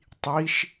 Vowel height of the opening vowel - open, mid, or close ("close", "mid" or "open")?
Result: close